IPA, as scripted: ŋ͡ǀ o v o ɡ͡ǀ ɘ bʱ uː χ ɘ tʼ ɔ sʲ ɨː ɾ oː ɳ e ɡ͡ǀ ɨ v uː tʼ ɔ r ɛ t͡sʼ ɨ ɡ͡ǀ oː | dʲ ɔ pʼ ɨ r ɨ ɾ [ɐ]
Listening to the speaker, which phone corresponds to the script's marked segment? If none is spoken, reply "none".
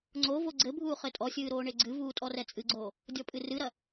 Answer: ɐ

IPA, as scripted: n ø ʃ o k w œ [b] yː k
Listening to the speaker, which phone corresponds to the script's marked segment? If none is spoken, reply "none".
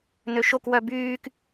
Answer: b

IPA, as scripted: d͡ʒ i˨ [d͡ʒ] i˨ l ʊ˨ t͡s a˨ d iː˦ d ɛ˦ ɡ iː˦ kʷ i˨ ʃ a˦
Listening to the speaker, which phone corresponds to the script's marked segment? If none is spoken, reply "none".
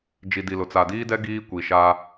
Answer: d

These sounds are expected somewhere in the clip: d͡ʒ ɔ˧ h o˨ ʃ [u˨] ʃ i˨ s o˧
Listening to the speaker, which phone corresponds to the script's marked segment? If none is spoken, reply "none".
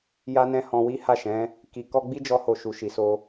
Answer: u˨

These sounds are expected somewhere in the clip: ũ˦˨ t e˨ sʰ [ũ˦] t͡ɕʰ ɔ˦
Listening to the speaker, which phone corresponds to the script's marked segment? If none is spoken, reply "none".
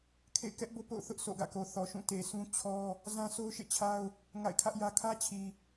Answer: ũ˦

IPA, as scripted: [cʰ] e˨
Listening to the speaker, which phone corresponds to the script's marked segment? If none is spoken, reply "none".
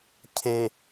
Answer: cʰ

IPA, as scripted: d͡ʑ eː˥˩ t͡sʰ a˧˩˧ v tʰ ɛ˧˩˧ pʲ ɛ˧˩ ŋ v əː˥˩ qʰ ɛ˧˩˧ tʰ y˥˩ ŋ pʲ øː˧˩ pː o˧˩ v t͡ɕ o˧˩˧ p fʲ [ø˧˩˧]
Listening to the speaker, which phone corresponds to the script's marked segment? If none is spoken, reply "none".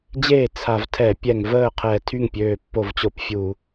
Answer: u˧˩˧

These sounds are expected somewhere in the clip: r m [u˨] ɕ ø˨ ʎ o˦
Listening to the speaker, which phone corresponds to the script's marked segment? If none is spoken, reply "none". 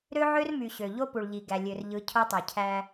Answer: y˨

